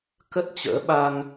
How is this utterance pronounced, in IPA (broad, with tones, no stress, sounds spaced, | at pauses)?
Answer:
k ə˦˥ t̚ t͡ɕ ə̰ː˧˥ ɓ a˧ ŋ